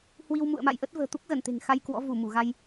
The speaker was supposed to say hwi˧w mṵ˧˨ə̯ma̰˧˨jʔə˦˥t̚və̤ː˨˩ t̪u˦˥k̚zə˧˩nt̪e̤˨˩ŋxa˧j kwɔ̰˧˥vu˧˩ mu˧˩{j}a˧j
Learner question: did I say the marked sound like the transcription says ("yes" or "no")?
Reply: no